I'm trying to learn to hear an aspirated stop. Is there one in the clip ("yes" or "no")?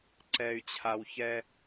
yes